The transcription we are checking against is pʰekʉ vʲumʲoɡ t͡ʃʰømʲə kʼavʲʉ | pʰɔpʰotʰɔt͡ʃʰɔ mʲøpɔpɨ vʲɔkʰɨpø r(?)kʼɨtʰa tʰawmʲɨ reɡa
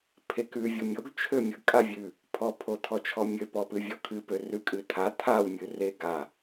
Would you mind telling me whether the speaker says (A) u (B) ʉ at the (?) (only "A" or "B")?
B